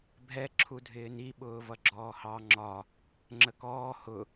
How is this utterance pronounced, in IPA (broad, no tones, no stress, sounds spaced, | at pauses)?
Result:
bʱ ɛ ǁʰ u dʱ ɪː n i ɓ ʊː v ʌ ɡ͡ǁ ɔː h ɑ ŋ͡ǁ ɒ | ŋ͡ǁ ə k ɔː h ʊ